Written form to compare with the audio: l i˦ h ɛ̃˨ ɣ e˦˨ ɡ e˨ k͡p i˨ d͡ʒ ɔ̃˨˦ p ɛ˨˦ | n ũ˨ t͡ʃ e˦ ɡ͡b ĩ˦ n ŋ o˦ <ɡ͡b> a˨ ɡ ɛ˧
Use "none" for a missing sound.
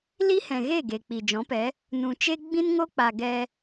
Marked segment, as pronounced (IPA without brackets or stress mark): k͡p